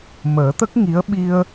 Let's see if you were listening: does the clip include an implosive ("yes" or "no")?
yes